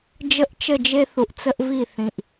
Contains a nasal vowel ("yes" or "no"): yes